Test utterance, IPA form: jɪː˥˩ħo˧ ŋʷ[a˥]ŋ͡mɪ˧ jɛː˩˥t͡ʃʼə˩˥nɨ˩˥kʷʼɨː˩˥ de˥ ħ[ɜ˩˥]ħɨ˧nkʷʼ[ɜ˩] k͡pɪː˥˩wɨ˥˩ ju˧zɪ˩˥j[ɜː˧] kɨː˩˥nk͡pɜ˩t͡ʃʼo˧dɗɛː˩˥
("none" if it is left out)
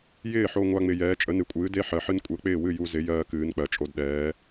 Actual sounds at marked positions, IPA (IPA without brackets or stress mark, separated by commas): a˥, ɜ˩, ɜ˩˥, ɜː˧